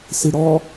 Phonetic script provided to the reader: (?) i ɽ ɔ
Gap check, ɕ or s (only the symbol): s